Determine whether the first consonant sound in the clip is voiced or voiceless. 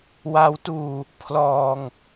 voiced